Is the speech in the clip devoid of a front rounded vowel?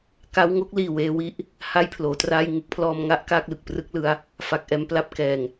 yes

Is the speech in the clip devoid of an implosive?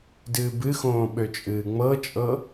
no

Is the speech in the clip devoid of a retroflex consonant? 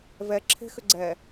yes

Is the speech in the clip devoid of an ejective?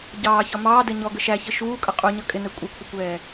no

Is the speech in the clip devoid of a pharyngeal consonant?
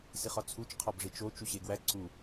yes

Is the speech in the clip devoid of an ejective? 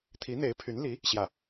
yes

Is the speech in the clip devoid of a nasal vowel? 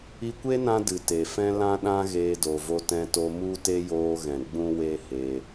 no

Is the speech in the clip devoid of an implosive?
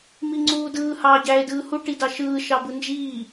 yes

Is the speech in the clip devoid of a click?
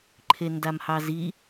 no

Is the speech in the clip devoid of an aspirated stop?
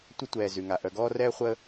yes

